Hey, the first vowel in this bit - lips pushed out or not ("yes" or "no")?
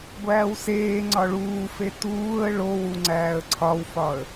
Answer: no